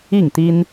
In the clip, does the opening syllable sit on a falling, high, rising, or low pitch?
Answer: falling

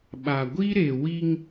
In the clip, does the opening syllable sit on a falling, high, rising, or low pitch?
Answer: low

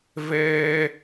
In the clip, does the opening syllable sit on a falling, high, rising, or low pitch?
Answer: high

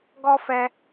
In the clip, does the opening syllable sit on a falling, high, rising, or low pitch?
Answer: high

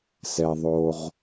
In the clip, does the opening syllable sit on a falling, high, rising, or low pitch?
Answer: low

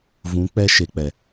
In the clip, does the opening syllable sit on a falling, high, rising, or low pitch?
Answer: rising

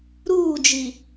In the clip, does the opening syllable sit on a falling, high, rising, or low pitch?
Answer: falling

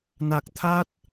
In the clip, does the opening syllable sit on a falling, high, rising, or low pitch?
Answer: low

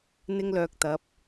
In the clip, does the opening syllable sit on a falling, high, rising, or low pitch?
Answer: high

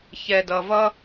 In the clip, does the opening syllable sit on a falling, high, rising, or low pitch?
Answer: low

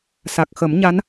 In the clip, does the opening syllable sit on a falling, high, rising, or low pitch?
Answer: low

